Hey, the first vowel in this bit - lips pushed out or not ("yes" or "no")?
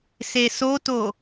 no